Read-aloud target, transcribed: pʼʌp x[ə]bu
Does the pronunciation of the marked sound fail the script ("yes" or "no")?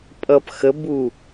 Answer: no